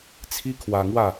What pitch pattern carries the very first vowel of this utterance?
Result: high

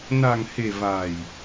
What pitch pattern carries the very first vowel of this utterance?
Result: low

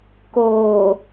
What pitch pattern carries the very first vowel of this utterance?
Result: low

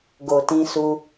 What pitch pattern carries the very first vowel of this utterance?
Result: low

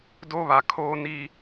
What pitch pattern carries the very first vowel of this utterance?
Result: high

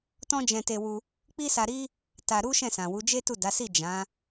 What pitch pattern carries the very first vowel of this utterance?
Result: high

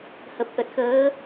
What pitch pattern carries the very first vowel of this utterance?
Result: low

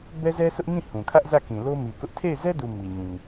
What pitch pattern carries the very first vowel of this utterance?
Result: high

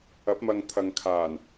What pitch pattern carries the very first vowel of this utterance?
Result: rising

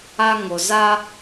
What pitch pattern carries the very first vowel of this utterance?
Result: high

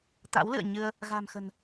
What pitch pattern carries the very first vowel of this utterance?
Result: rising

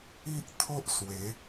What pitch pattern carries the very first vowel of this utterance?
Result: high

